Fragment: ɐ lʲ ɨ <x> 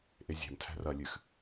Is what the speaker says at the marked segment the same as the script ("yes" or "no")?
yes